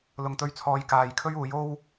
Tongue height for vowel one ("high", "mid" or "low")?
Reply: high